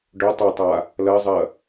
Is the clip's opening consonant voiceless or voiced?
voiced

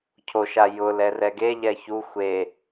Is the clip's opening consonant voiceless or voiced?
voiceless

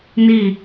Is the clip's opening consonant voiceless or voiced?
voiced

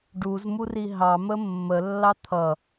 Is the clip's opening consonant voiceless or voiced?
voiced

